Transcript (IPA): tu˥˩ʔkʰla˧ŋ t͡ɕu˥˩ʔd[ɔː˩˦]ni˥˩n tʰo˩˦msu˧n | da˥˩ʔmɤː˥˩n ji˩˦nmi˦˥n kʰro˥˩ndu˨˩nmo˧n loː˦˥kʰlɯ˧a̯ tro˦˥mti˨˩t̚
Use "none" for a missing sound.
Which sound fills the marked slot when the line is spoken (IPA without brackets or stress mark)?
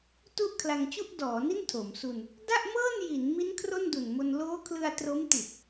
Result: ɔː˩˦